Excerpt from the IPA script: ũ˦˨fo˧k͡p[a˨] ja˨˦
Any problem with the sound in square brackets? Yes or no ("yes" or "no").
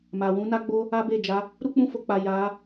no